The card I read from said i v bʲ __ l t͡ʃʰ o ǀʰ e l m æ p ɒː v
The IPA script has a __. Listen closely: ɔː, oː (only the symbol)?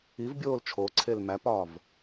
oː